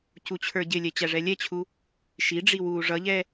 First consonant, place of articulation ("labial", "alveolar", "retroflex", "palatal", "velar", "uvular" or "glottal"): palatal